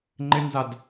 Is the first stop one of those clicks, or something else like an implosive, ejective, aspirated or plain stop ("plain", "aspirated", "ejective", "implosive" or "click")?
click